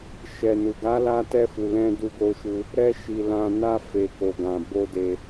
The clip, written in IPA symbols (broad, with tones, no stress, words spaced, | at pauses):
ʃɛ˨nu˨ ɡa˨˦la˧ tɛ˦fu˧lɛ̃˦ du˧ɡo˧ʃu˧ | ɾɛ˧ʃi˨ lã˨na˧ fe˨ko˨ ɡã˨bo˧de˧